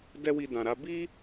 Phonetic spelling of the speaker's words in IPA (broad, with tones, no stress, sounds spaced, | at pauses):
d ɛ˦ w i˧ d ã˨ ɾ a˧ b i˦